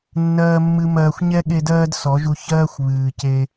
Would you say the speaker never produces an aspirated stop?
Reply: yes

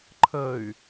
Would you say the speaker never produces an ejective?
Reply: yes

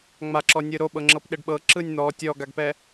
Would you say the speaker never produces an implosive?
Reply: no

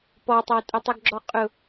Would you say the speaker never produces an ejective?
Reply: no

